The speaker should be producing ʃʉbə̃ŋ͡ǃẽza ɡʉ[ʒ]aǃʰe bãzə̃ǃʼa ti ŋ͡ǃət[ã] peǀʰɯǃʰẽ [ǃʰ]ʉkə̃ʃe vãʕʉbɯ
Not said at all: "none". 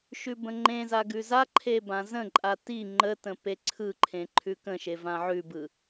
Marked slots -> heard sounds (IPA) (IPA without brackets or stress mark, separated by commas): z, ə̃, ǃʰ